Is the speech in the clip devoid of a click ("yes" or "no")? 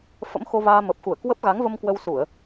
yes